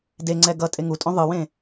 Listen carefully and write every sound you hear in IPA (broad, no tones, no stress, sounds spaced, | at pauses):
d e ŋ͡ǀ ɛ ɡ ʌ tʼ e ŋ u tʼ õ ðˤ ɯ w ẽ